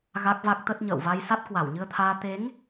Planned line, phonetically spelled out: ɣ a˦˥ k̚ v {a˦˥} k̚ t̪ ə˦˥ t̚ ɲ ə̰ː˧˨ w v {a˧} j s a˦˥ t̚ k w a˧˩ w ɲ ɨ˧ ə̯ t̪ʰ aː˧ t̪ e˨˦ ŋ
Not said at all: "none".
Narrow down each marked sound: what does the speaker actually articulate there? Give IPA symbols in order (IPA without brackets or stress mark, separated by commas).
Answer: a˦˥, a˧